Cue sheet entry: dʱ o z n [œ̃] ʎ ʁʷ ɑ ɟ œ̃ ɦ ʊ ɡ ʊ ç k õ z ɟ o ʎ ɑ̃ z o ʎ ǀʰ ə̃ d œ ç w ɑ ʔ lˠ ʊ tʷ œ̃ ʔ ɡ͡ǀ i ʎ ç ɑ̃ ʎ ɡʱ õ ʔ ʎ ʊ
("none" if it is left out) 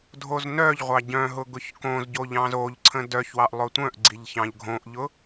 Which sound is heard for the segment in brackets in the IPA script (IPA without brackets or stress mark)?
œ